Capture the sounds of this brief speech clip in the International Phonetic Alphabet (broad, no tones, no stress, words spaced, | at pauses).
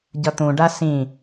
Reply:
ɟʌt̪ũɖa sĩ